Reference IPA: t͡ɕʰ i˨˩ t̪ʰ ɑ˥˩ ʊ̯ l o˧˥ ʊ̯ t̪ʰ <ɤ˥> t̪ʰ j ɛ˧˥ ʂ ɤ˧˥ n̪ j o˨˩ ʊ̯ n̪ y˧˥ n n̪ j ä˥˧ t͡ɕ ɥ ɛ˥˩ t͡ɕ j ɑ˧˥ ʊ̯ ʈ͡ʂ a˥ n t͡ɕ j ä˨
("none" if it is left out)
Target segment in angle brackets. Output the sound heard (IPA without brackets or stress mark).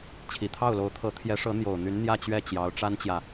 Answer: ɤ˧˥